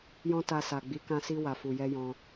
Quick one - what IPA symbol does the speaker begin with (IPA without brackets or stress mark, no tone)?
j